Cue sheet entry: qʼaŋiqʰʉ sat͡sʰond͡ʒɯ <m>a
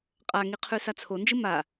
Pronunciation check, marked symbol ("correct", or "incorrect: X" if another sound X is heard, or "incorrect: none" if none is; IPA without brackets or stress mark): correct